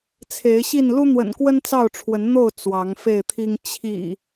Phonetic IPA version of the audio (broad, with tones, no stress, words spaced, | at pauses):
t͡sʰe˨˦ɪ̯ɕi˥˨n lu˦n̪wə̰˨˩nkwə˦n t͡sɑ˥˨ʊ̯ʈ͡ʂʰwə˨˦nn̪o˥˨ʊ̯ t͡swɑ˨˦ŋfe˥˨ɪ̯t̪ʰi˦ŋ t͡ɕʰḭ˨˩